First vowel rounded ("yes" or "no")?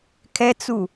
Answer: no